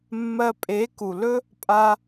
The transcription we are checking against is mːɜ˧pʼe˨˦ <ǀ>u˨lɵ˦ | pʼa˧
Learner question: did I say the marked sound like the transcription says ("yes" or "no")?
no